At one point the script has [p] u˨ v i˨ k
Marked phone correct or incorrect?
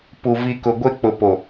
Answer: correct